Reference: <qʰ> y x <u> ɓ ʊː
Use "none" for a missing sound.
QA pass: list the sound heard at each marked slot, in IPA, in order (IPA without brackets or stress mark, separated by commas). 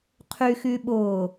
qʰ, y